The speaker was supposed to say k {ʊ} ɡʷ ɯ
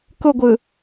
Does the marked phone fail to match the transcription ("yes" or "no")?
no